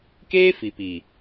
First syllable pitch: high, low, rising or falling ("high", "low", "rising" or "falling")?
high